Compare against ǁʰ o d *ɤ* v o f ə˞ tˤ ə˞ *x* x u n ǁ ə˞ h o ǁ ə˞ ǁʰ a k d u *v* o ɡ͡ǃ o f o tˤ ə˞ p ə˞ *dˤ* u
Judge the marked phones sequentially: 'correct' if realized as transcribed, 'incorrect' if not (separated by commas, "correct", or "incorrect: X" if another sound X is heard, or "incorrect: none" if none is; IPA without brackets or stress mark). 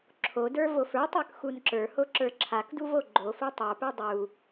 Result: incorrect: ə˞, incorrect: k, correct, correct